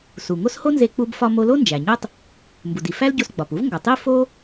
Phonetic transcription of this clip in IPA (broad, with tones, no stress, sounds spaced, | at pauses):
s u˩ ŋ o˥ s h o˥ n z e˧ k͡p u˧ b f ɒ˧ m o˧ l o˥ n d͡ʒ æ˩ ɲ o˥ tˤ | m b u˩ d i˩ f æ˥ l ɟ o˧ s ɡ͡b ɒ˩ p u˥ v ŋ ɡ ɒ˩ tˤ i˥ f o˥